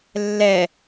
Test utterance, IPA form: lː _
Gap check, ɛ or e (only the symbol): ɛ